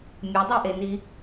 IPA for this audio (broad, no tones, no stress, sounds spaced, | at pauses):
mʲ ə dˤ e ʔ e n i